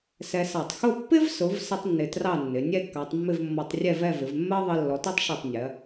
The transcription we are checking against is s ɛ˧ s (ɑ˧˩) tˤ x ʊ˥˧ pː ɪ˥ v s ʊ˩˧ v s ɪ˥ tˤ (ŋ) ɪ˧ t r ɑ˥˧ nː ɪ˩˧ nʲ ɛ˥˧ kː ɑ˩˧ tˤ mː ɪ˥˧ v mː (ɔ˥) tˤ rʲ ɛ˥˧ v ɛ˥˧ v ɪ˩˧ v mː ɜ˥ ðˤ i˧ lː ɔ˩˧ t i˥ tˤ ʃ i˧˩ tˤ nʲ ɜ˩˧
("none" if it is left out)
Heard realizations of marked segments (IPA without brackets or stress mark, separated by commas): ɑ˧˩, nː, ɔ˧